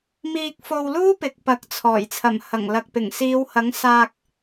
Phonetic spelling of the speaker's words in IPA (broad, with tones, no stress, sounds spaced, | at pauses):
m iː˧ k̚ f o˧ w l uː˥ p ɪ˨˥ k̚ p ɐ˨˥ k̚ t͡sʰ ɔː˨˩ j t͡sʰ ɐ˨˩ m h ɐ˨˩ ŋ l ɐ˨ k̚ p ɪ˨˩ ŋ s iː˨˧ w h ɐ˨˥ ŋ s aː˧ k̚